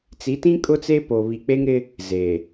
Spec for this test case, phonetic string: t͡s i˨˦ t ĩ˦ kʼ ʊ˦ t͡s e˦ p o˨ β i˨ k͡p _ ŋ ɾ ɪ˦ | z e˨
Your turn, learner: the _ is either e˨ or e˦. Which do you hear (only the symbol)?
e˦